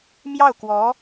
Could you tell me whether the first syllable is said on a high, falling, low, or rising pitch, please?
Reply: falling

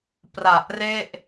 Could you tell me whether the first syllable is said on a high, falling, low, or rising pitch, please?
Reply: low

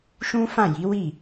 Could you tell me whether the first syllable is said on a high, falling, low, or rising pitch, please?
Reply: high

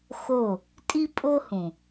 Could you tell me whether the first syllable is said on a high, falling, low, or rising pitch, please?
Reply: falling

